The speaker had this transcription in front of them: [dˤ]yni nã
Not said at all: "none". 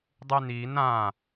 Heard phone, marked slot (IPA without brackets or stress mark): dˤ